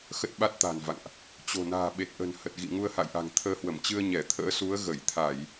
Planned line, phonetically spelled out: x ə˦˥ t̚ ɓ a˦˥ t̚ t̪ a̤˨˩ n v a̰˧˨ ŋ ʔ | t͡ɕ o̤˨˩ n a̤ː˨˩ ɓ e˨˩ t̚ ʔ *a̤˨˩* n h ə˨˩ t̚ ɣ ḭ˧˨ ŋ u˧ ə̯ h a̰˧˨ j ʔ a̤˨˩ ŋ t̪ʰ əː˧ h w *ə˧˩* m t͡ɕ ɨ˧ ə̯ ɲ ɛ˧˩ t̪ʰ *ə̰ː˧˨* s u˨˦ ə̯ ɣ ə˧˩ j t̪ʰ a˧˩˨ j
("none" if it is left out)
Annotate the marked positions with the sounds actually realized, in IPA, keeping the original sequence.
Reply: ə̤˨˩, ə˧˩, ə̰ː˧˥

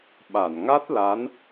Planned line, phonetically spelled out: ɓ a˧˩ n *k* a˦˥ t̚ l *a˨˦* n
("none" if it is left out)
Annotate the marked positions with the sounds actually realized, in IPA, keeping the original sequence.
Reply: ŋ, a˨˦

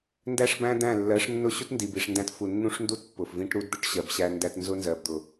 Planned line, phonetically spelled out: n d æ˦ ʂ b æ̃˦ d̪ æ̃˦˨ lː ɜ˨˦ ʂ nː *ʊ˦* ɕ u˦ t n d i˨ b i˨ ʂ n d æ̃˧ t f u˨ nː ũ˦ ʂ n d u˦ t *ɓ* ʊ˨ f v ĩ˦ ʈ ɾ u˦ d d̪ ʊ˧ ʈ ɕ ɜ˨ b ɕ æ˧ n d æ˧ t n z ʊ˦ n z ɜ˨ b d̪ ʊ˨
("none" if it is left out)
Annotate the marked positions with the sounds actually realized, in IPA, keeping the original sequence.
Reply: ʊ˦, pː

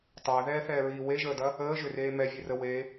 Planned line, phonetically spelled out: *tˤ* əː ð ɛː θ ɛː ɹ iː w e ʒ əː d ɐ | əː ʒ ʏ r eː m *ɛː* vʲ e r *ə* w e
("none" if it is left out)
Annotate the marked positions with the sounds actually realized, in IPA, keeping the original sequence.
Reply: tˤ, ɛ, ə

